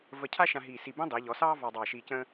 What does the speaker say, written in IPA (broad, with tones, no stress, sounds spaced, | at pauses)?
v ə˧˩ cʰ a˥ ʃ ã˧ ɦ iː˧˩ s i˧˩ b ə̃ː˥ dˤ ɘː˩˧ ʎ ɔ˩˧ s ɑː˥ v ɑ˧ dˤ ɑː˧˩ ʃ iː˧ c ə̃ː˥